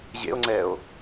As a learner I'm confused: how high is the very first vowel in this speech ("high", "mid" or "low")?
mid